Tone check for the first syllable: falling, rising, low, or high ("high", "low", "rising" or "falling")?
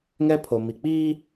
high